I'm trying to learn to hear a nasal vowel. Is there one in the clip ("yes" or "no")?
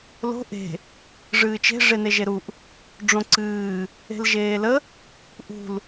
yes